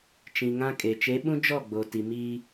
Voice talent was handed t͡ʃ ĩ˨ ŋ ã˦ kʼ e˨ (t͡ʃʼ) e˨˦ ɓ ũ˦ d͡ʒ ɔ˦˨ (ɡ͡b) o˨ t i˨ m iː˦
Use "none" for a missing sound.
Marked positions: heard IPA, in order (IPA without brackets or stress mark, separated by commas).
t͡ʃ, ɡ͡b